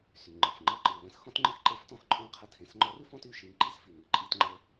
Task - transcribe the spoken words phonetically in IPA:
sy˩ŋ͡ǃə˩f ŋ͡ǃɤ˧ ǃɨ˩lə̃˩˧s xɔ̃˥tŋ͡ǃɨ˥xǃe˧˥ftɔ̃˧˥x ǃʼɔ̃˥ qʰə˧˥ tʰẽ˩˧sŋ͡ǃɔ˧˥rɨ˥ fɔ̃˥ty˩ ʃi˧ŋǃi˥sfi˩ ŋɨ˩ǃʼi˧tŋ͡ǃə˧

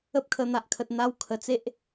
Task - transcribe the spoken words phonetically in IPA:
ə˦p̚kʰə˧ n̪a˨ʔkʰə˨t̚n̪a˧w kʰə˨˩t͡se˦ʔ

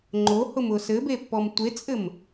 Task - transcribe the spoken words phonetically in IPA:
ŋ͡ǃohʊmʊ sɘbepːɔm tʷet͡sʼɘm

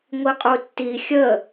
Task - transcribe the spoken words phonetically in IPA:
ŋʷiqʼutːi xʲə

